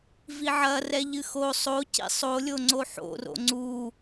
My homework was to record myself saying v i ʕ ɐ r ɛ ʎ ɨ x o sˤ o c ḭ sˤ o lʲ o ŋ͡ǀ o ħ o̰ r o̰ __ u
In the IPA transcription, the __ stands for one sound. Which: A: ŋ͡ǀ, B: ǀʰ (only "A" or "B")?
A